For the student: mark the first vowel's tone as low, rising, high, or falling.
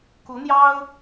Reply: rising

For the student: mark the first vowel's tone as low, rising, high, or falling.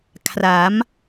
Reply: rising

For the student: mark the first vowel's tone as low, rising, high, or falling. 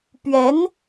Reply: rising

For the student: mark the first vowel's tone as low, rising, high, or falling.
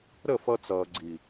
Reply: falling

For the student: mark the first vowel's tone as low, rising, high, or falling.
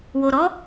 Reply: low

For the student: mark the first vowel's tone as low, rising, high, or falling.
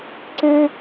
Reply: high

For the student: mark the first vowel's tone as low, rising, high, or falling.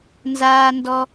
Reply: high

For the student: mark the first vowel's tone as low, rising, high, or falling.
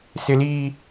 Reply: low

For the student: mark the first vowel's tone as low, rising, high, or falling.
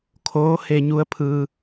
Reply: rising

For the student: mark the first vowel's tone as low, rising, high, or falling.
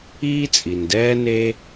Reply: high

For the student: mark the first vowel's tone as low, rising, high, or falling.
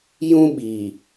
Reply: high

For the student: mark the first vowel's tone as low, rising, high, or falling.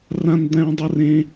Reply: high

